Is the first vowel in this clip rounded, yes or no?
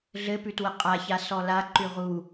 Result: no